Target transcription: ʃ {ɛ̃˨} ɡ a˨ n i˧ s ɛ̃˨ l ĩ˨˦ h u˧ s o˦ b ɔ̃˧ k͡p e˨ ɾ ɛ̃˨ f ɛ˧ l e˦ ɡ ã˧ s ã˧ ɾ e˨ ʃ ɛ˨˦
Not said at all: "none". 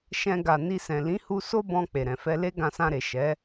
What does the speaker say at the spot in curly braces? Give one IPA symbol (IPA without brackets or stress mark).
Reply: ɛ̃˧